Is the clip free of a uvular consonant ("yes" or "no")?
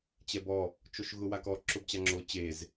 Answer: yes